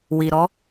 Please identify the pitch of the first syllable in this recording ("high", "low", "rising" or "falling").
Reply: low